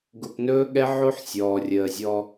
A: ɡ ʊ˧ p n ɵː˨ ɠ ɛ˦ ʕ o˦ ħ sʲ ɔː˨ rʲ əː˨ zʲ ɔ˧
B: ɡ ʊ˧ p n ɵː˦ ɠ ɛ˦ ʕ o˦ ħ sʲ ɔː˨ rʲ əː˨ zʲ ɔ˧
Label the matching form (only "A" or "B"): B